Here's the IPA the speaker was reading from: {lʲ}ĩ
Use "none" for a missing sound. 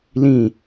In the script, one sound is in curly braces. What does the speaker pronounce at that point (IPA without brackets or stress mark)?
l